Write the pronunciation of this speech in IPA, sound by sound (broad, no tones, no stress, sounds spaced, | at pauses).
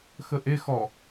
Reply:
x ə ʔ e x ɔ